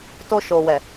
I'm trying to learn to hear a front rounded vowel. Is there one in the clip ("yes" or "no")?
no